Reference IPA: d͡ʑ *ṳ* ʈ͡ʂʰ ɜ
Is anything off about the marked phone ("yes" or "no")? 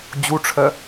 yes